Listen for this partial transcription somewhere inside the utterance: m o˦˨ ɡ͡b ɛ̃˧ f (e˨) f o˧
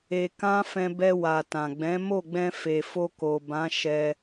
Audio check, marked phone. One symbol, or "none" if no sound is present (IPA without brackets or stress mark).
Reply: e˨